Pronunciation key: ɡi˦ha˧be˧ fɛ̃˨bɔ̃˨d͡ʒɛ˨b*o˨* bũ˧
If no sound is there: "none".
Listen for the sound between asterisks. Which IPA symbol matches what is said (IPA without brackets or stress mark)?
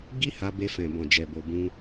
o˨